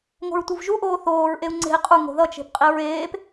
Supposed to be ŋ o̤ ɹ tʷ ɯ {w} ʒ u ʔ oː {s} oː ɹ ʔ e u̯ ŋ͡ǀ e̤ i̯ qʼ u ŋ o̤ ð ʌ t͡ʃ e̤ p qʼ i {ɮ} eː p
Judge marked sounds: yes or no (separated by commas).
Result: no, no, no